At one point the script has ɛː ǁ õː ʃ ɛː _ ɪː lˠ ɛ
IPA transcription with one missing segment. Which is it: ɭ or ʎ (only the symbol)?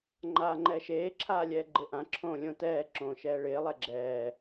ɭ